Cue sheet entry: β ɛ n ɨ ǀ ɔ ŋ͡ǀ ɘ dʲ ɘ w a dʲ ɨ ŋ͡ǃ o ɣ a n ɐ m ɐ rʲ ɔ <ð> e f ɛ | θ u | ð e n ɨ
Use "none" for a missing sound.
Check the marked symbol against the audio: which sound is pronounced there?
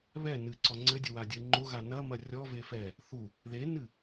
v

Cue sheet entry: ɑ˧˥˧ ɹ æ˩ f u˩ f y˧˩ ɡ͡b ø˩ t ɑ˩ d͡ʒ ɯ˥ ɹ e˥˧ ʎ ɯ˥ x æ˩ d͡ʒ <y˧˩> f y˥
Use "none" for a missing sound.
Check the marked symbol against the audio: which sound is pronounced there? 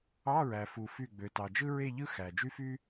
y˥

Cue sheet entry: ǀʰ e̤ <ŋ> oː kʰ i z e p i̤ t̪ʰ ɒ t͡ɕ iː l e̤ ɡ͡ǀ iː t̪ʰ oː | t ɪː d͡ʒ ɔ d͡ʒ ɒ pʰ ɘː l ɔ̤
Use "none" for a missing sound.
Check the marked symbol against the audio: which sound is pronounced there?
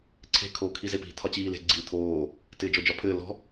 kʰ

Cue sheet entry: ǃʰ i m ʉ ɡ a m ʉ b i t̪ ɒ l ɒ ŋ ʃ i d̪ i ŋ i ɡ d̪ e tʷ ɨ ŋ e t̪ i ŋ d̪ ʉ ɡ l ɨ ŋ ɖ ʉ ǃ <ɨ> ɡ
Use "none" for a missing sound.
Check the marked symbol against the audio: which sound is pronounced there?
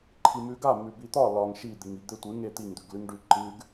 ɨ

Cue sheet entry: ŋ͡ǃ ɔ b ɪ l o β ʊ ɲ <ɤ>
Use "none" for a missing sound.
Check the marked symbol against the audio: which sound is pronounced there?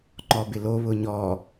ɔ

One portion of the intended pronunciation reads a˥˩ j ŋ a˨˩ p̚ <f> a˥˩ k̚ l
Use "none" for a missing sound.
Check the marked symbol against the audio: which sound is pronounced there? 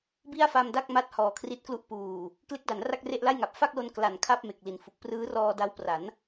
f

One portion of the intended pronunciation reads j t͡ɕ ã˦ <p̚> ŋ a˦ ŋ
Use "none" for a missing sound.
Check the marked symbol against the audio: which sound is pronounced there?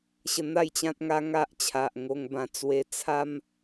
t̚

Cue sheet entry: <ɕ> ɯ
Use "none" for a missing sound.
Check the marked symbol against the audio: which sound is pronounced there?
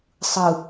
sˤ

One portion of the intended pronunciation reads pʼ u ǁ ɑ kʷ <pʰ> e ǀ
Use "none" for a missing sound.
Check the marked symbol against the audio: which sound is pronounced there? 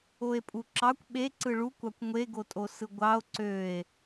ɓ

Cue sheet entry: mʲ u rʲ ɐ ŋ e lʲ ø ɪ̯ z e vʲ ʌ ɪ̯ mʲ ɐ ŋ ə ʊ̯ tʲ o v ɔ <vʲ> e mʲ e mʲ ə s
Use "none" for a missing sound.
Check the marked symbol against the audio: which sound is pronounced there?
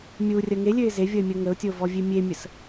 vʲ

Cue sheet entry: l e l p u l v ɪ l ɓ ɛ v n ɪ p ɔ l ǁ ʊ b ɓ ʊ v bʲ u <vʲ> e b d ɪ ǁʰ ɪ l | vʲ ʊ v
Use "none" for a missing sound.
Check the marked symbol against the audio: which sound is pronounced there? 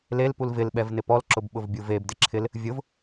v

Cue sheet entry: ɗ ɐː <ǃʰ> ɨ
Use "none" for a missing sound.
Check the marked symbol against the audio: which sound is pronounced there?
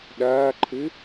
ǃʰ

